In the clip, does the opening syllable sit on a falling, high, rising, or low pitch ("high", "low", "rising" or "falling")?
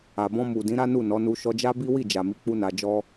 low